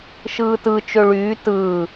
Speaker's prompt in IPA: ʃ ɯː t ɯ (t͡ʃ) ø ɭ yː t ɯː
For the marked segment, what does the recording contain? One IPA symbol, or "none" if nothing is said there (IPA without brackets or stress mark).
t͡ʃ